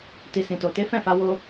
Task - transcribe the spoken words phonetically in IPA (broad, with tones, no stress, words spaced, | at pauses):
ti˨sĩ˨to˨te˨˦ fɛ̃˦˨fa˨˦ wo˦